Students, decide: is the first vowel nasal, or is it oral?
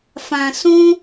nasal